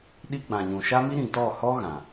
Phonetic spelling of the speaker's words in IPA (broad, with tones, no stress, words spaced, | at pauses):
ɗi˦ɡ͡bã˨ɲũ˨ ʃa˦mi˦ɾĩ˨ tɔ˦˨hɔ˦ ɣã˨